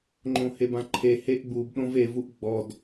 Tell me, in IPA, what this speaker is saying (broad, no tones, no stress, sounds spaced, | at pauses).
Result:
ŋ͡ǃ õ h e b ã ǃʰ e h e ʔ ɡ͡b u b ɗ õ v e v u ʔ ɡ͡b ɔ d